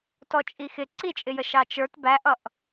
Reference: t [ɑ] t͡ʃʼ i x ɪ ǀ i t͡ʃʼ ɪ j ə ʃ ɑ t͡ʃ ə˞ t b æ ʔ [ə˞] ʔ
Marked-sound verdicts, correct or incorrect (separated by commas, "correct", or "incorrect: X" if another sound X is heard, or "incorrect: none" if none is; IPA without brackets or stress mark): incorrect: ɔ, incorrect: ʌ